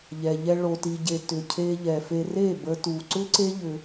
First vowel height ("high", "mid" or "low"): mid